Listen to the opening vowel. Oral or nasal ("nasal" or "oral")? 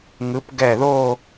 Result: oral